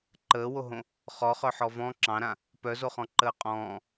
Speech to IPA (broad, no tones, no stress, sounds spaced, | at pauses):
ǃ əː w o ɦ õ | χ ɔ χ œ ħ ɔ v ɔ̃ ǁ ɑ̃ ɾ ã | p œ z o χ ɔ̃ ǃ əː qʼ ɔ̃ː